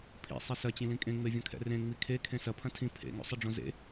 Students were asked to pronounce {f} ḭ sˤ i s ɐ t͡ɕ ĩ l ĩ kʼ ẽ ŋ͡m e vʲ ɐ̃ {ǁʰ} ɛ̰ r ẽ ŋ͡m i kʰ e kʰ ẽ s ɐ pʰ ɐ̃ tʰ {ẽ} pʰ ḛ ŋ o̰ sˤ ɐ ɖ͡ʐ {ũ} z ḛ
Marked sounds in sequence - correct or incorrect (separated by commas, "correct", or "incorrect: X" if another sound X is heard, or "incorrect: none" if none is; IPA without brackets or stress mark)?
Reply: incorrect: pʰ, incorrect: kʰ, incorrect: ĩ, incorrect: õ